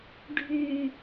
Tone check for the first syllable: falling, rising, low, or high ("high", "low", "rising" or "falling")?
low